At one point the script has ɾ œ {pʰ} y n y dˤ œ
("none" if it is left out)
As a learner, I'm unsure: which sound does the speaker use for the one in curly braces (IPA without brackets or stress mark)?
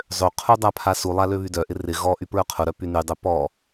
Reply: p